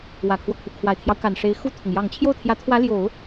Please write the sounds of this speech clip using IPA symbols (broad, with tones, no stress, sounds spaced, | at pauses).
w ä˨˩ kʰ w ɔ˦ kʰ u˩ kʰ w a˨˩ ɪ̯ t̪ʰ j ɑ˦ ʊ̯ k a˨˩ n ʂ e˧˥ ɪ̯ x u˥˩ t̪ʰ ʊ˩ ŋ j ɑ˨˩ ŋ t͡ɕʰ j o˥˩ ʊ̯ t̪ʰ j ä˧˥ t̪ʰ w ä˧˥ l j o˨˩˦ ʊ̯